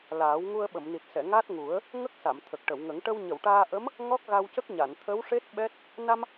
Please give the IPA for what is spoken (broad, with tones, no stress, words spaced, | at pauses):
laː˨˩˦w ŋu˧ə̯ ɓə˨˩˨mni˨˩t̚sɛ˨˩˨ ŋa˦˥t̚ŋu˨˩˦ə̯ | ŋə˦˥k̚sa˨˩˨m t̪ʰə˨˩k̚ʈə˨˩˨wŋə˨˩˦ŋ ʈə˧wɲə˨˩˨wʈaː˧ ʔə˧˥m | ŋɔ˦˥k̚ɣa˧wcə˦˥k̚ɲa˨˩˨n t̪ʰə˧˥wʂe˦˥t̚ ɓɛ˦˥t̚ | na˧m